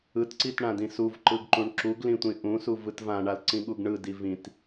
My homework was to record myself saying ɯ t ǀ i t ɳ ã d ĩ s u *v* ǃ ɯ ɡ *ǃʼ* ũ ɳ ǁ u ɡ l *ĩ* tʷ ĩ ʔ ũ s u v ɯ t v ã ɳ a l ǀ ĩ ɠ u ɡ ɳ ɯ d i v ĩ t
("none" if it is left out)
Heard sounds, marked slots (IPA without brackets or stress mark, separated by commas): v, ǃ, ĩ